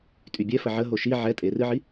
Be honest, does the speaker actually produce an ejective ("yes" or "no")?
yes